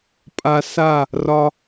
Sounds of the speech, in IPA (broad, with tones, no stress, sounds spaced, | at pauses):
pʼ a˧ s a˦˨ | r ɒ˧